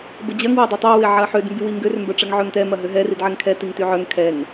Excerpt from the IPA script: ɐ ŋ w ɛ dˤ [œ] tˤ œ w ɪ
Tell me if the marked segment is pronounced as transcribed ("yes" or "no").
no